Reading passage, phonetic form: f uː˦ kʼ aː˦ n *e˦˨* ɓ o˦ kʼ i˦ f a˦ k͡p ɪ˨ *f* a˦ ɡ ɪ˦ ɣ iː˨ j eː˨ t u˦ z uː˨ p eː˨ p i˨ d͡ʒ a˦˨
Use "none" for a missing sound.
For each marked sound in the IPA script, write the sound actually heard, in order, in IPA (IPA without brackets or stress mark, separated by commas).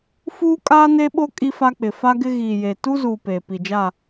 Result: e˦, f